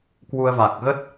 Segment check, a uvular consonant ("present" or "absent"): absent